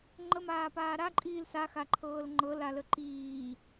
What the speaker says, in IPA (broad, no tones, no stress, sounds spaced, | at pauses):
ŋ͡ǃ ə m aː p aː ɾ a ǃʼ iː l s a x a ǃʰ ɤː l ŋ͡ǃ ɤ l a l ə ǃ iː